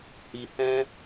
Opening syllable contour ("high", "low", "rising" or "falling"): low